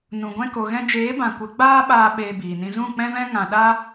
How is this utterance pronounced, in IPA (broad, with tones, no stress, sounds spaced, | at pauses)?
n ũ˨ ɡʷ ɛ̃˧ k o˨ ɣ ɛ̃˧ d͡ʒ eː˨˦ b ã˨ kʷ ə˨˦ ɡ͡b aː˦ ɓ aː˧ ɓ eː˧ b iː˨ n ĩ˧ z ũ˦˨ k͡p ɛ̃˦ v ɛ̃˦ ŋ ã˧ ɗ a˦